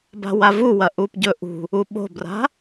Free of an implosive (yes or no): no